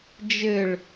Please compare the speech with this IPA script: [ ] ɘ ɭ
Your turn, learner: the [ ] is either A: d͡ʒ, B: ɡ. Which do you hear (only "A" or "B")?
A